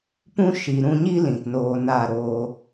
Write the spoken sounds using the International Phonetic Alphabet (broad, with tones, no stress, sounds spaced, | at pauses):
p ũ˦ ʃ i˨ ɾ ũ˧ ɲ i˦ l ĩ˨ t n oː˧ n a˦˨ ɾ oː˦